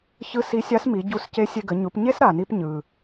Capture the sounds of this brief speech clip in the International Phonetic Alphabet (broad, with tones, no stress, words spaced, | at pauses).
çɯ˧˥ si˧˥ sʲa˧˥smi˩˧ɟu˧sce˧˥ sʲe˧ɡə˩˧ɲu˩˧pɲe˥s ɾa˩ni˧p ɲɯ˩